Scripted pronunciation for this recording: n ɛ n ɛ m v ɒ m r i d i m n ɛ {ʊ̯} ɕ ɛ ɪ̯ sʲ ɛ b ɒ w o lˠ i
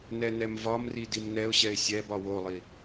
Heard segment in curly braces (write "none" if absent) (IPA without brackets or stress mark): ʊ̯